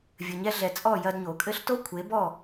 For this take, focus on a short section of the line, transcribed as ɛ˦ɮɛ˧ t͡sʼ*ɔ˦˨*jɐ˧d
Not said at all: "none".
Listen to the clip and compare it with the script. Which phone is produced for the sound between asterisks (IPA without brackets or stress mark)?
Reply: ɔ˦˨